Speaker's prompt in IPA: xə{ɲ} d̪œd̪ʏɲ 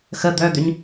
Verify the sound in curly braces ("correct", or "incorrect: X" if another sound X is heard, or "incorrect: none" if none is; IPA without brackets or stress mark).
incorrect: none